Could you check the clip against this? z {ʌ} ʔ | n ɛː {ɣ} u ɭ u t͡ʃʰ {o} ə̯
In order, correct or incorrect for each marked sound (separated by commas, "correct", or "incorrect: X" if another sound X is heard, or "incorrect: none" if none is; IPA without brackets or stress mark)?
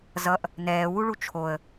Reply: correct, incorrect: w, correct